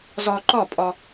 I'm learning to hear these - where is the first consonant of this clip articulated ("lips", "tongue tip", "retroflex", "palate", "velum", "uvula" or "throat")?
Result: tongue tip